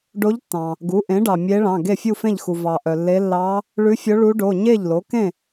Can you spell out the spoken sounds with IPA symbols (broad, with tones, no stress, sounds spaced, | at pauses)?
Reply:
ɖ o˧˥ ʎ tː ɑ̃˩ | ɡ u˩˥ ʔ ẽ˩˥ ɖ ɑ˩ mʲ e˧˥ ɭ ɑ̃˩˧˩ ɡ e˥˩ fʲ u˥˩ f ẽ˥˩ ʎ x u˩ v ɑ˩ ʔ œ˩ lː e˧˥ lː ɑ˧˥ | ɭ ʉ˧˥ fʲ o˧˥ ɭ u˧˥ ɖ o˩˧˩ ɲ e˥˩ ʎ l o˩˥ k ẽ˥˩